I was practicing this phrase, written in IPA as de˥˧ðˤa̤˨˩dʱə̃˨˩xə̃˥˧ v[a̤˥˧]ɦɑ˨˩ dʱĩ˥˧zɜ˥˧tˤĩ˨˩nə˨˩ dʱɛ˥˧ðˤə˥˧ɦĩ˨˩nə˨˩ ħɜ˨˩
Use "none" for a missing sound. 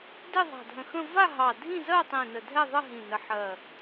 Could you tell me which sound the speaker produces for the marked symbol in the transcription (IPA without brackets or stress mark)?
a˥˧